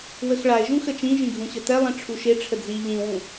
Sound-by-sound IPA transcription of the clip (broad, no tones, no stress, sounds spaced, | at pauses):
w ə x ɭ a ɪ̯ ʒ ũ x ə t͡ʃ ĩ ʒ ĩ ɡʱ ũ ɕ ə t ɛ lˠ ĩ ʈ͡ʂʰ u ʃ e ʈ͡ʂʰ ə d͡z i ʎ ĩ w ũ